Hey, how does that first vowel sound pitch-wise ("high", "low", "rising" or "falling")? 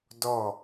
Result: falling